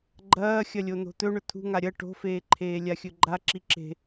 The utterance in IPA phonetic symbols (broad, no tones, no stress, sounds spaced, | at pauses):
ɡ͡ǃ ɐː xʲ ɐ lʲ o n̪ o̤ t̪ ɵ ɳ ɵ t̪ʰ ṳ ŋ a ɾʲ ɐ ʈ o̤ f eː ǃʰ eː lʲ a xʲ ɵ ɡ͡ǃ a ǁ i ǁ e̤